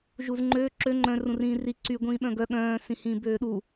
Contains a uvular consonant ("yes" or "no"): no